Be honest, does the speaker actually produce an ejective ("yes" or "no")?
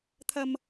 no